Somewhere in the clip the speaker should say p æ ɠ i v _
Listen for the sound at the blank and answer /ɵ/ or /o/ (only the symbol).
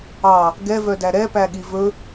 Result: ɵ